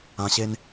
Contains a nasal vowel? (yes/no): yes